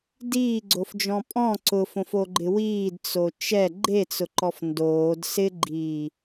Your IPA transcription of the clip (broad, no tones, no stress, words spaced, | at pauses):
diːɡ͡ǀofd͡ʒɔ̃ pʼɔ̃ ǀʊfõfoɡ͡ǃɪ wiːdt͡so t͡ʃɛ ɡ͡ǃet͡sʊǃɔf ndoːd sɪɡ͡ǃiː